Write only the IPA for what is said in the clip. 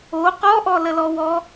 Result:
o qɔʔɔ ləlɔwɔ

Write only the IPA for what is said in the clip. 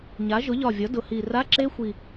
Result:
ɲa˩˧ʒʊ˩˧ʎɒ˨˩vʲɒ˩˧ dʊ˩˧hi˨˩ ra˧˥˧ǁe˦˥xʷi˨˩

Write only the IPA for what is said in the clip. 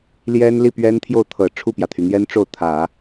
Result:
ljɛ˥n li˥˩pɥɛ˥nt̪ʰjo˥˩ʊ̯t̪ʰɤ˨˩ ʈ͡ʂʰu˥˩pjä˩t̪ʰy˩n̪jɛ˥n ʈ͡ʂo˥˩ʊ̯t̪ʰä˨˩˦

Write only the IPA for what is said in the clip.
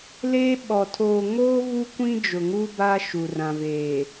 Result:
leː˦ɓɔ˨ tʰoː˨ŋoː˦ vu˦kʷĩ˦ d͡ʒʊ˨ŋu˦ ba˦ ʃu˨rã˨veː˨

